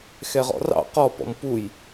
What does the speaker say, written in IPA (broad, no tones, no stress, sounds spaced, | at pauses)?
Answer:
x ɛ ʁ ɔ̰ r ɑ̰ q ɔ p ɔ̰ m p u j